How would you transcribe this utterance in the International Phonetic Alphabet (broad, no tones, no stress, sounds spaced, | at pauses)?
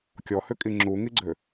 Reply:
kʲ ɔ h ʏ kʼ i ŋ͡ǁ u ŋ i ɡ͡ǀ ø